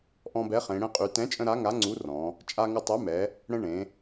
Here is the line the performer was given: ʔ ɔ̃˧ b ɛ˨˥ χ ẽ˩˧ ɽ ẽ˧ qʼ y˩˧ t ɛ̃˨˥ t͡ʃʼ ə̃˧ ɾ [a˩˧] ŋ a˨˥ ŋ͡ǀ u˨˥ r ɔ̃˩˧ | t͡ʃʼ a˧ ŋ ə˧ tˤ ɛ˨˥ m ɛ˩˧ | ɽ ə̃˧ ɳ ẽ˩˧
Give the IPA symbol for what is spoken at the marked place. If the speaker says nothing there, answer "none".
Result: a˨˥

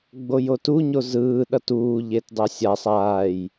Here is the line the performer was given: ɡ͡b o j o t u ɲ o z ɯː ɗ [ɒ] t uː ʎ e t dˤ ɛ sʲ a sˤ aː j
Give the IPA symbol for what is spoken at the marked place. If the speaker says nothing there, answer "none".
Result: ʌ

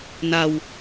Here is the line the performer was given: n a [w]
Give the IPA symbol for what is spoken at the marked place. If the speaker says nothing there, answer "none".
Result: w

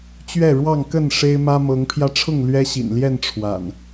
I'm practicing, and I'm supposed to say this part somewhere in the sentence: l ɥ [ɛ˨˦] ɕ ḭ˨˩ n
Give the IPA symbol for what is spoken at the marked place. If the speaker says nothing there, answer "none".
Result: ɛ˦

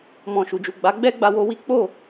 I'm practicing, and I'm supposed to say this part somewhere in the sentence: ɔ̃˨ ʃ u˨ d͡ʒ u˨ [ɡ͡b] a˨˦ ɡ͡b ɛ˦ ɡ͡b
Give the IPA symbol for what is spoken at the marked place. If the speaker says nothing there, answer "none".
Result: ɡ͡b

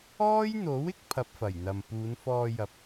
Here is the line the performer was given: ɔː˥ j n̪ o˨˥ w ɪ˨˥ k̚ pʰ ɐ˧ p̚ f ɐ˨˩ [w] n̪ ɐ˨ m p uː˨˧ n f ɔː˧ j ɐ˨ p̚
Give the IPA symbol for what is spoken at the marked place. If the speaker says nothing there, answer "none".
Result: j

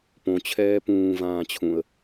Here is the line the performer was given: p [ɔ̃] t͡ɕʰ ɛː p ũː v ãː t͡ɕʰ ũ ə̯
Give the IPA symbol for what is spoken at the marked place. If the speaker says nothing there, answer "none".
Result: õ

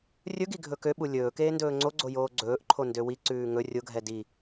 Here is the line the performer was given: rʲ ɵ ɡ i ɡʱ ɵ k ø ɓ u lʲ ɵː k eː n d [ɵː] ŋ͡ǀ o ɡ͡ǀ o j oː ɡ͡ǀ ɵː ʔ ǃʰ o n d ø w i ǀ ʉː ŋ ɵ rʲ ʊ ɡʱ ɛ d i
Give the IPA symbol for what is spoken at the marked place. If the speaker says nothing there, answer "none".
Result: ɵː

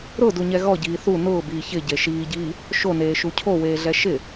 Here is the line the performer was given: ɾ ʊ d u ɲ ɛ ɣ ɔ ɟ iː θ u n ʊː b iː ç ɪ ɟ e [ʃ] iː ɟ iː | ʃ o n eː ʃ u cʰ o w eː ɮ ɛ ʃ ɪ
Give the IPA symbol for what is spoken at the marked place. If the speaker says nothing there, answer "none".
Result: ʃ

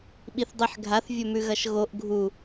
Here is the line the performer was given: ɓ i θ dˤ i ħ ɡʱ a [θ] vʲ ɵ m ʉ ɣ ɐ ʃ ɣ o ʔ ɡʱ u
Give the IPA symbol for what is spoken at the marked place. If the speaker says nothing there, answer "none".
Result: θ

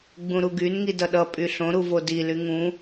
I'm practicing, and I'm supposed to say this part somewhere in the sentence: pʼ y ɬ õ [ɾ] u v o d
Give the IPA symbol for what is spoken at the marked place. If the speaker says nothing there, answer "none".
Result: ɾ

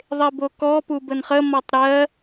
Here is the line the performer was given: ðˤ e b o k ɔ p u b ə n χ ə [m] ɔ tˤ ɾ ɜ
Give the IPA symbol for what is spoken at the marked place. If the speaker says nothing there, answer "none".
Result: m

